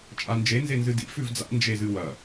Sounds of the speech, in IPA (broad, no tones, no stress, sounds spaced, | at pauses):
t͡ʃʼ a n d͡ʒ e n z e n z ɨ d ḭ f ʉ v d͡z a̰ n d͡ʒ e z ɨ w ɐ